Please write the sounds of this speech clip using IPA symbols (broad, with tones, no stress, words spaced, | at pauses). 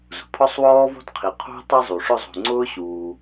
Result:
zṳ˩pʰɔ˥sˤwɔː˥vɔ̤˥d qʰi˩ qʰṳ˥ tˤi˦zˤu˩ ʂʊ˦zˤṳ˨ ŋ͡ǀʊː˥ɕuː˩